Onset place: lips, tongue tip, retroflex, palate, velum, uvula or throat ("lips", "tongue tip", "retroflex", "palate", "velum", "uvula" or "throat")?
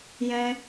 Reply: palate